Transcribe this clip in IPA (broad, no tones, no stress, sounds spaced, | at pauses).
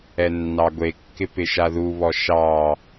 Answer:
ɛ nː ɑ ɡʷ e kː ɪ p ɪ ʃ a ð u β ɔ ʃ ɑ